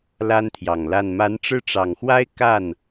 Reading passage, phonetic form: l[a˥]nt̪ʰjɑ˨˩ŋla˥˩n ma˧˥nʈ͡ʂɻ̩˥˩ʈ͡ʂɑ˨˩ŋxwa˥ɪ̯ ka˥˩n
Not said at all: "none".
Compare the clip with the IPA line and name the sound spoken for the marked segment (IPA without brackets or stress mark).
a˥